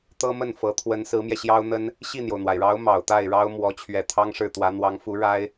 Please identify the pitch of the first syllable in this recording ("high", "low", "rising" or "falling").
high